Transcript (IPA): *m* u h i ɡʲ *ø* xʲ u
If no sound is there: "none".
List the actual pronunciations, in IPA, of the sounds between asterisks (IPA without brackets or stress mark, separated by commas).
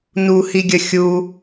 n, ə